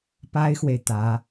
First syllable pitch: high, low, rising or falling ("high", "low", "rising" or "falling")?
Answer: high